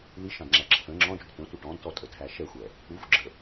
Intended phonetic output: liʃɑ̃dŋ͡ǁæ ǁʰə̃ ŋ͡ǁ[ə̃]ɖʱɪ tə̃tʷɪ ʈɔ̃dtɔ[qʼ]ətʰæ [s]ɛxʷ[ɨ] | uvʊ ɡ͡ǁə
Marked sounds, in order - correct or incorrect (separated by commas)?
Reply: incorrect, incorrect, incorrect, incorrect